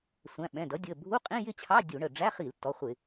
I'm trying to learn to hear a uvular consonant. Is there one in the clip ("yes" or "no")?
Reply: yes